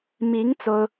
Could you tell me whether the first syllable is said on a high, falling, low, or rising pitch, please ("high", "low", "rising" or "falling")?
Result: rising